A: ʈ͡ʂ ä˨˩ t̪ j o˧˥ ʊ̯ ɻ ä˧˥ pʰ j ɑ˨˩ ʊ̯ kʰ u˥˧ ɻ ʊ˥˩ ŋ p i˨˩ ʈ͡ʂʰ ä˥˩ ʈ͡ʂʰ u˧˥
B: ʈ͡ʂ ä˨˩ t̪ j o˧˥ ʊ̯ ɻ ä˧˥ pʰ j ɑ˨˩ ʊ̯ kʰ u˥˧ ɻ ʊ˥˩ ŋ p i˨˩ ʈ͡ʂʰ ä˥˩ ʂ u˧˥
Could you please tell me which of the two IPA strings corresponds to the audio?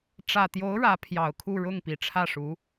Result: B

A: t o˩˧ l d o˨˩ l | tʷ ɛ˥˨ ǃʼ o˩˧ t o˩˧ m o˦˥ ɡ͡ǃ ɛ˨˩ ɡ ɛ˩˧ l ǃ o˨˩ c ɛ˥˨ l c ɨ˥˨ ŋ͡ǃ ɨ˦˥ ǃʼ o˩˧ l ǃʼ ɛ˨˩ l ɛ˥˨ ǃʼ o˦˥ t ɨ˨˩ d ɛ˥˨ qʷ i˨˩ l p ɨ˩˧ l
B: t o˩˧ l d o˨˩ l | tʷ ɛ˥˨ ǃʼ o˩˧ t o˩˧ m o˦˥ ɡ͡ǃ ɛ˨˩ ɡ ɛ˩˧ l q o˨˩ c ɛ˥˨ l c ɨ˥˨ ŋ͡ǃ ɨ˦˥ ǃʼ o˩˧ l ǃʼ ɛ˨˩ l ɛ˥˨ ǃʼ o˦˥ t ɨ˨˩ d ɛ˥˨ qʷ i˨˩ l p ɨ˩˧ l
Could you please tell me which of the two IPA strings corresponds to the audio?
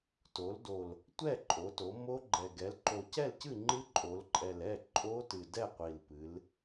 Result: A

